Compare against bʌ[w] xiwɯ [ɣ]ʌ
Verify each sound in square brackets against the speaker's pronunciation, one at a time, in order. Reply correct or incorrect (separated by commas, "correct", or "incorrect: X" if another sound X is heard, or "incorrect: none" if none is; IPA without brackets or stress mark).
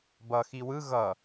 incorrect: none, correct